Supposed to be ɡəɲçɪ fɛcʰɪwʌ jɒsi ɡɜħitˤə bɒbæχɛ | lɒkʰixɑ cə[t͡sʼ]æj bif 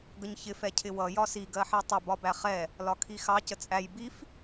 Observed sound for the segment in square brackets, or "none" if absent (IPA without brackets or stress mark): t͡sʼ